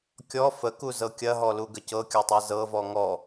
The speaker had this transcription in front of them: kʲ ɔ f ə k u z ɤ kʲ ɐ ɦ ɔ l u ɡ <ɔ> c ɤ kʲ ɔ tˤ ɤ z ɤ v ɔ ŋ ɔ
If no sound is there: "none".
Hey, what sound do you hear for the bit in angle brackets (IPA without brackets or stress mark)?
ə